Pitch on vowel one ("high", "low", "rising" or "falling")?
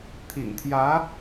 low